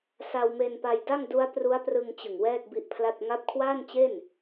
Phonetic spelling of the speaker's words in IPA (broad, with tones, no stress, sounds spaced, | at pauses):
s a˧ w m e˧ n p a˧ j d a˥˩ ŋ d u˦˥ a̯ p r u˦˥ a̯ p r ɯ˧ ŋ t͡ɕ ɯ˨˩ ŋ w ɛː˥˩ k̚ b i˦˥ ʔ pʰ l a˥˩ t̚ ŋ a˦˥ p̚ kʰ w aː˥˩ n t͡ɕ e˥˩ n